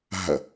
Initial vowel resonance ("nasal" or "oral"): oral